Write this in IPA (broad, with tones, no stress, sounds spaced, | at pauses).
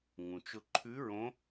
ŋ ũ˩ t͡ʃ ʊ˧ ǃʰ ʉ˧˥ ɹ õ˧˥